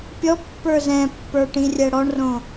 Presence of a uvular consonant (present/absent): absent